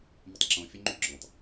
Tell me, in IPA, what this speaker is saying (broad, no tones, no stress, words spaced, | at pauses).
mətˤǁõ fʲəŋ͡ǃyɡ͡ǁɔ̃tˤ